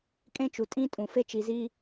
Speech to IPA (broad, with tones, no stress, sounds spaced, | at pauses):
kʼ ẽ˦ t͡ʃ u˨ tʼ ĩ˦ tʼ ũ˨ f e˦ t͡ʃ i˨ z i˦